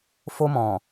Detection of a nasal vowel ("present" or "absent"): present